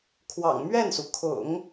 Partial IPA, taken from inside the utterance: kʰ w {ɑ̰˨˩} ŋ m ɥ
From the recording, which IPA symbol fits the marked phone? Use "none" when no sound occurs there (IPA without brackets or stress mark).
ɑ̰˨˩